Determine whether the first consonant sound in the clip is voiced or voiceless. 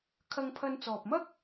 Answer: voiceless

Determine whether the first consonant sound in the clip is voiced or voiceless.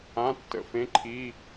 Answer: voiceless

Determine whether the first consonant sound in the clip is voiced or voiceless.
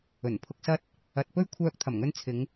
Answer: voiced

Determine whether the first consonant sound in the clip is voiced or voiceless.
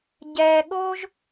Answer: voiced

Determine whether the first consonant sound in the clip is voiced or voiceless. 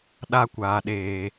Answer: voiced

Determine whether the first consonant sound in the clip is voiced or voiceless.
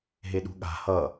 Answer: voiced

